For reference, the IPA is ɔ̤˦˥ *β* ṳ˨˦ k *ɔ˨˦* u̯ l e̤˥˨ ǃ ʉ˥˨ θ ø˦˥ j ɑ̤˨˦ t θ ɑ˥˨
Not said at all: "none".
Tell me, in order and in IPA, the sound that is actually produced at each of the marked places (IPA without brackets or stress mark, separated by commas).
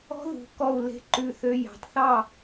ð, ɔ˥˨